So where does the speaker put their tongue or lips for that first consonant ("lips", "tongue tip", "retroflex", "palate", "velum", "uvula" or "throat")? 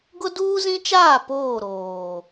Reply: velum